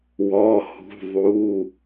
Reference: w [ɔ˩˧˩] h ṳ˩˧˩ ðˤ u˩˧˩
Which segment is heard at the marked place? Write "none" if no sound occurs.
ɔ˩˧˩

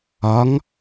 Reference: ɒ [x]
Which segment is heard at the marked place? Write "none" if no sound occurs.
ŋ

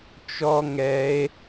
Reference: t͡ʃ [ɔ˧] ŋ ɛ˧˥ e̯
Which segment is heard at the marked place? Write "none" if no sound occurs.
ɔ˥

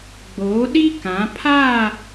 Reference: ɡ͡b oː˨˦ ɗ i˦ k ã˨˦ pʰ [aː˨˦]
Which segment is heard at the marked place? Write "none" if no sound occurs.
aː˦˨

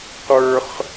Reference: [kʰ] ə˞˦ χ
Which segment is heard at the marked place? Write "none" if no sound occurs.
q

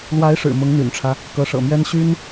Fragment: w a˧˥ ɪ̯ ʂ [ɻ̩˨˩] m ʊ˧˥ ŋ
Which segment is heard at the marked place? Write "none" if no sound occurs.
ɻ̩˨˩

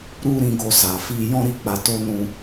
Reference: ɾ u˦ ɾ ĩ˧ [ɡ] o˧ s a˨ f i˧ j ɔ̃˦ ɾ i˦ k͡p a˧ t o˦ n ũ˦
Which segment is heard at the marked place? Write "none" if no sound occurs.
ɡ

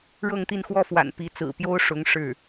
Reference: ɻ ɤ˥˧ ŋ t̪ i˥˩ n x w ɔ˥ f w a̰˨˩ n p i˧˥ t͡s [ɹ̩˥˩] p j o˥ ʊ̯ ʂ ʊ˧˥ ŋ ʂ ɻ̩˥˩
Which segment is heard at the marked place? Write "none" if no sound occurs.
ɹ̩˨˩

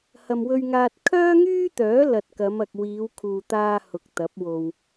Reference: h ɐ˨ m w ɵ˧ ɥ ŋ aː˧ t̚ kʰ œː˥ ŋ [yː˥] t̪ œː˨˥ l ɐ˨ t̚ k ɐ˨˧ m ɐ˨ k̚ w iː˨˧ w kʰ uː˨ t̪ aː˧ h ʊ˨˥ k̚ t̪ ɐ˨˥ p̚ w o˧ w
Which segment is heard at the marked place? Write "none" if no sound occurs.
yː˥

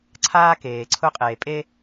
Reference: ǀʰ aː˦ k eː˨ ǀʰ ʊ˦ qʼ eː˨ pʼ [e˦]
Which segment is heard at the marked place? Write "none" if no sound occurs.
e˦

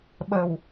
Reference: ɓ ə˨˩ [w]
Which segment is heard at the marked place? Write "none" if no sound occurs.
w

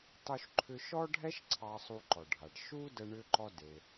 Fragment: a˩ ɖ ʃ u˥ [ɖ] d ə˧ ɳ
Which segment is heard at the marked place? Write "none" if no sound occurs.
none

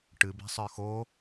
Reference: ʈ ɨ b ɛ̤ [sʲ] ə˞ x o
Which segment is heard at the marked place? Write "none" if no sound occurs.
sˤ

